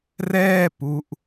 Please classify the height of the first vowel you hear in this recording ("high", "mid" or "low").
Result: mid